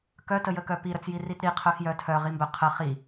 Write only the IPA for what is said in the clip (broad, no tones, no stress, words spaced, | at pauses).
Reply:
kœtəjəkœ piɾət͡sjirit ɾiqʰœxjœ tʰœʁimbœ qʰə χi